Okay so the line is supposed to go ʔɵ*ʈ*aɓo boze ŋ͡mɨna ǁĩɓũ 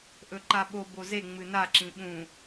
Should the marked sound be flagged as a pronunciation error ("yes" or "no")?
yes